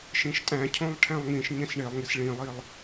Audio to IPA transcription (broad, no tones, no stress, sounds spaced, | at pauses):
ʃ ĩ ʃ tʼ æ̃ cʰ õ lˠ ʈʰ æ̃ lˠ ŋ ĩ ʃ ɲ ẽ s ɳ e lˠ ŋ i s ɭ ĩ lˠ i lˠ